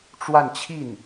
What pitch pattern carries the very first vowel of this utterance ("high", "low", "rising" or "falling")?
falling